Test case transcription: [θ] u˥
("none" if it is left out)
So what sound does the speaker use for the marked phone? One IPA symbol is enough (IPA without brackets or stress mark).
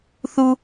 θ